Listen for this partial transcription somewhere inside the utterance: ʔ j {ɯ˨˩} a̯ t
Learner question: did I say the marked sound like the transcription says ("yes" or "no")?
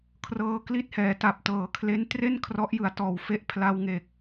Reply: yes